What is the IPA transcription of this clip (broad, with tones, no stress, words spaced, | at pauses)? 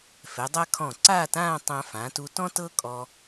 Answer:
fɛ˩˧dˤa˥ kʰɔ̃˧˩ǀaː˥˧tãː˥˧ tˤã˧fãː˩˧t u˧tɔ̃˥tɤ˥kʼɔ˧